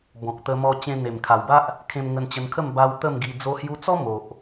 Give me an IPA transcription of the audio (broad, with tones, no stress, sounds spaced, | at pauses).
b ɔ̃˨ k̚ t̪ ə˧ m ɔ˧ t͡ɕ ẽ˧ n̪ e˨˩ m kʰ a˨˩ w b a˦ ʔ | kʰ ẽ˧ m ŋ ə˧ n t͡ɕ ə˧ n kʰ ə˥˧ m b a˧ w t̪ ə˥˧ m ɡ i˧ d͡z o˧ h j u˧ t͡s ɔ˦ m o˨ ʔ